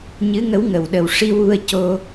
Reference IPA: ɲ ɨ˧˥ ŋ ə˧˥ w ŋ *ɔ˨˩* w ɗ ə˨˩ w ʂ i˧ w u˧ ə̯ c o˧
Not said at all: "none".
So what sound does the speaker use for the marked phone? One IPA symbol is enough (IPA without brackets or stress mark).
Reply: ə˨˩